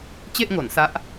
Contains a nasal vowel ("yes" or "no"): no